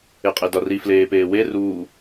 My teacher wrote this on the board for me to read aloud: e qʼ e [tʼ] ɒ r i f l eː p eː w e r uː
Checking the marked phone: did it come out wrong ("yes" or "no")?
yes